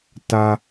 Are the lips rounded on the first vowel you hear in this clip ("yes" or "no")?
no